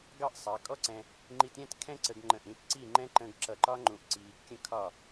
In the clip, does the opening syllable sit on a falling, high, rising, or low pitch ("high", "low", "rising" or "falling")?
high